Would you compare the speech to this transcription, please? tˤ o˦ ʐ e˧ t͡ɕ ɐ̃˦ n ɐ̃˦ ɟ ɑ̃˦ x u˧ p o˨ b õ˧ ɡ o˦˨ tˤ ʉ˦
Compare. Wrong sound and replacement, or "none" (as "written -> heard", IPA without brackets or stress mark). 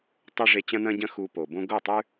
ɑ̃˦ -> ɐ̃˦